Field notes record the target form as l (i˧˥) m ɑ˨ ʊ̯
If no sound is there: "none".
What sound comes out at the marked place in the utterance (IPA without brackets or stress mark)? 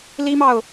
i˥